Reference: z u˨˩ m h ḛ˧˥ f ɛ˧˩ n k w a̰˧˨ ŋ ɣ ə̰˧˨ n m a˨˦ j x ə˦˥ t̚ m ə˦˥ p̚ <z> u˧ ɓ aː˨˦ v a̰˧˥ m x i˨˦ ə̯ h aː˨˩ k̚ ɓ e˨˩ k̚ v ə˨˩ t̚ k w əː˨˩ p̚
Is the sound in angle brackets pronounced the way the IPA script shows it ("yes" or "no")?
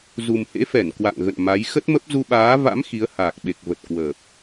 yes